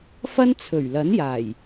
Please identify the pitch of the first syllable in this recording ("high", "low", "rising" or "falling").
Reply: high